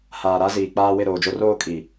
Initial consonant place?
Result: glottal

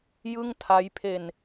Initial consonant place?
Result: palatal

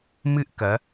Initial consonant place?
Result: labial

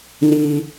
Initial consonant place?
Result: alveolar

